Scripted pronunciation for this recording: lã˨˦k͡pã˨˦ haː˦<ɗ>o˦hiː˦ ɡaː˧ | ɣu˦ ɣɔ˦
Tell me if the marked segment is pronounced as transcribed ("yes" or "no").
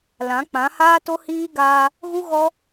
no